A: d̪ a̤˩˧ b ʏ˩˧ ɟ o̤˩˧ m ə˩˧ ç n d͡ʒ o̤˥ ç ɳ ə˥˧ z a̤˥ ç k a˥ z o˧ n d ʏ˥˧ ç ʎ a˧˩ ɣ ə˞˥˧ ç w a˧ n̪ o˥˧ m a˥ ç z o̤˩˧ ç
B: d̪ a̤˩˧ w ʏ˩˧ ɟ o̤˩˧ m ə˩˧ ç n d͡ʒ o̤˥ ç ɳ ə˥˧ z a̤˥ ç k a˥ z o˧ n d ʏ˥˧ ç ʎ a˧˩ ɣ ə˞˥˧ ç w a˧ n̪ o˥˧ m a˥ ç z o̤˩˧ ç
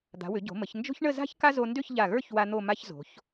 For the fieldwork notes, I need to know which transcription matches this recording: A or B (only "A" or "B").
B